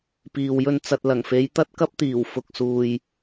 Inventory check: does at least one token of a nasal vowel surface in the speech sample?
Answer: no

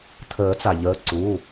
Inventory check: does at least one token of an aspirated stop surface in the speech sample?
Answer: yes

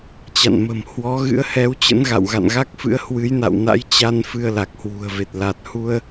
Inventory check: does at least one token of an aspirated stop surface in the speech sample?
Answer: no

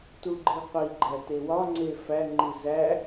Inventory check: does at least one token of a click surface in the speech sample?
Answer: yes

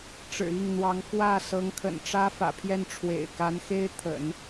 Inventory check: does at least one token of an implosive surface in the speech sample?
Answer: no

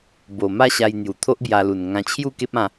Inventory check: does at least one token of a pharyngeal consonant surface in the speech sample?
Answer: no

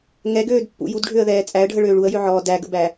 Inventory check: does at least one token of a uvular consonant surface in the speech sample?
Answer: no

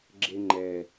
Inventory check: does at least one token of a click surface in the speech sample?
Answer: yes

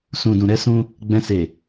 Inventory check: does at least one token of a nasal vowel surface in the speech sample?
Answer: yes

